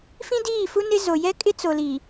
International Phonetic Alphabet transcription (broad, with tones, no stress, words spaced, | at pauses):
fĩ˦ diː˦˨fu˦ nɪ˦zo˨ jɛ˦kʼɪ˦t͡so˨ li˨